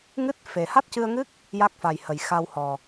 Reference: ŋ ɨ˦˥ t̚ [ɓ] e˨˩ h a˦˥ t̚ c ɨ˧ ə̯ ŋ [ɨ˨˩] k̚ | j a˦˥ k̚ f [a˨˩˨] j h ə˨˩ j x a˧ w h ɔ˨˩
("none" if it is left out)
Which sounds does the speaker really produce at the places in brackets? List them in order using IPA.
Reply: f, ɨ˦˥, a˨˩

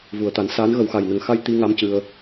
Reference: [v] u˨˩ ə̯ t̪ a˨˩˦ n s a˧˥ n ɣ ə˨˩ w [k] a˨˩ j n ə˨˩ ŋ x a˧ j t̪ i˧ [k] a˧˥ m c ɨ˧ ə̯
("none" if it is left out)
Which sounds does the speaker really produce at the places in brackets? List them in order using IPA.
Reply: v, x, ŋ

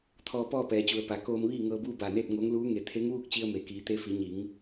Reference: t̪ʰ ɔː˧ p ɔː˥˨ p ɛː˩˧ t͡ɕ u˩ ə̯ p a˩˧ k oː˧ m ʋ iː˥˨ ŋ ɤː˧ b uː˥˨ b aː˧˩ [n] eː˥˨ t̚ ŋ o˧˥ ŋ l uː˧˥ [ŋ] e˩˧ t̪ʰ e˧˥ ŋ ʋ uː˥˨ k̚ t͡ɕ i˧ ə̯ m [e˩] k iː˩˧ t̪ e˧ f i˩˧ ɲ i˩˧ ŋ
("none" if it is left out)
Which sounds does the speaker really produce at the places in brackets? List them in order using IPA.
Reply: n, ŋ, e˩

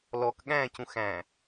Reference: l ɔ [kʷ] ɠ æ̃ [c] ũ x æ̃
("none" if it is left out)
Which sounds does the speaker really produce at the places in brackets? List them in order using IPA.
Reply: k, c

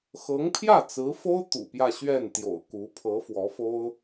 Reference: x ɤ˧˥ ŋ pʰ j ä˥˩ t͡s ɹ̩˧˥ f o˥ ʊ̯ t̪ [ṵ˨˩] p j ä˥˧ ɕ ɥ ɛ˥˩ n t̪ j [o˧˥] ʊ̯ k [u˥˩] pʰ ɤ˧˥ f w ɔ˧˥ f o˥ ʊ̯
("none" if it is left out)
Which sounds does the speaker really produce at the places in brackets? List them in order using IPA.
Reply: ṵ˨˩, o̰˨˩, u˧˥

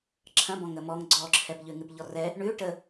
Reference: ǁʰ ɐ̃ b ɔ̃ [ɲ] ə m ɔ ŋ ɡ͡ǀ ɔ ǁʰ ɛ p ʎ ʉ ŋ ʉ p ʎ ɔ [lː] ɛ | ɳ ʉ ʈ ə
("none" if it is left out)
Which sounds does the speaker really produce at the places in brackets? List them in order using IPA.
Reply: ŋ, r

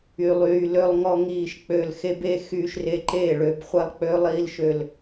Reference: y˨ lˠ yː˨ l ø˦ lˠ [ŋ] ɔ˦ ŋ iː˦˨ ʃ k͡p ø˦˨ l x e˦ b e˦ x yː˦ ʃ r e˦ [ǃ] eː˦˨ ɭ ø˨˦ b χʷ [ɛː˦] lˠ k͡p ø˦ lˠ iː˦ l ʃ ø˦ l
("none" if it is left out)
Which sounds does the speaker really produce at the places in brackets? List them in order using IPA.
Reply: ŋ, ǃ, ɛ˦

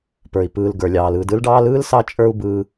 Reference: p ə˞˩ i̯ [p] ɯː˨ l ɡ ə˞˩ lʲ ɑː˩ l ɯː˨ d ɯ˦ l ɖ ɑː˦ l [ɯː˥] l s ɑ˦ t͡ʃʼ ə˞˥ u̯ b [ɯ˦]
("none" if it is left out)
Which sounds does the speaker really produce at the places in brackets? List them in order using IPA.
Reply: p, ɯː˥, ɯː˦

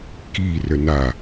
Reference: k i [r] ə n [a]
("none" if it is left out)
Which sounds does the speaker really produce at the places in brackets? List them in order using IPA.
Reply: r, a

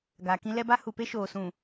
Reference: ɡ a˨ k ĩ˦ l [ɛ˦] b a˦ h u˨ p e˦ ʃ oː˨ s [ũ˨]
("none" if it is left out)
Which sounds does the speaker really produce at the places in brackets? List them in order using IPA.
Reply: ɛ˦, ũ˨

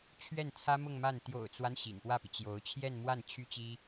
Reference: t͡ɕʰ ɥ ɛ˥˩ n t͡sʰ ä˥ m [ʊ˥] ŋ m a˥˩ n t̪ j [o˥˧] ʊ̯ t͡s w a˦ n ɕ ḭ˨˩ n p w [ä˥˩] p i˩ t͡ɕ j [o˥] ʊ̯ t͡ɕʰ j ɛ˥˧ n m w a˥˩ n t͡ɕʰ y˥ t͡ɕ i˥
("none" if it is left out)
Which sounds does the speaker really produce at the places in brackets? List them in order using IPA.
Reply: ʊ˥˧, o̰˨˩, ä˥˩, o˧˥

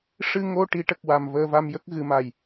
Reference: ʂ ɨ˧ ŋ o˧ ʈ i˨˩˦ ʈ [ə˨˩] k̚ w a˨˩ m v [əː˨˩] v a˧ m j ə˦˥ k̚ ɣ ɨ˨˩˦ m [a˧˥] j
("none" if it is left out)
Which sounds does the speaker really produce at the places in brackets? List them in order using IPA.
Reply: ə˨˩, əː˧, a˨˩

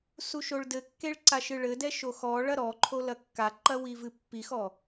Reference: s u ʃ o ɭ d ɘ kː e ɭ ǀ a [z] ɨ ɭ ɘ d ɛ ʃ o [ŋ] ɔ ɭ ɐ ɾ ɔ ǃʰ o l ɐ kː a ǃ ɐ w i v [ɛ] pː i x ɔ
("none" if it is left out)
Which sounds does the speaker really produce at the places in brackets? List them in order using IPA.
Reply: ʃ, x, ɨ

